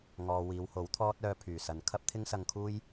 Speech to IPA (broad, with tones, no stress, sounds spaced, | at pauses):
ŋ ɔː˨ w iː˨˧ w h o˨˥ w t̪ʰ ɔː˥ t̚ œː˧ pʰ yː˨˩ s ɐ˨ n kʰ ɐ˥ p̚ t̪ʰ ɪ˥ ŋ s ɐ˧ ŋ kʰ uː˥ j